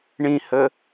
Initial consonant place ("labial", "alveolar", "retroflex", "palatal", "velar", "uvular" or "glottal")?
retroflex